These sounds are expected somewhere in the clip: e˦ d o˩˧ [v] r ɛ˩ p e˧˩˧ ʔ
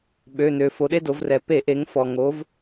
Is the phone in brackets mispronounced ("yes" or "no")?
no